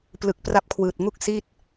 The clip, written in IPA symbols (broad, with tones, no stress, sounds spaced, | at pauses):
p l ɯ˨˩ k̚ p r a˦˥ p̚ kʰ w ɯː˨˩ t̚ ŋ u˥˩ k̚ s i˥˩ t̚